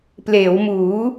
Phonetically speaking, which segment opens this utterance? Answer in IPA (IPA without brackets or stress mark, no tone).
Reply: p